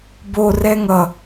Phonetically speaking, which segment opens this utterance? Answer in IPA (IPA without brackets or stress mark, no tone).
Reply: b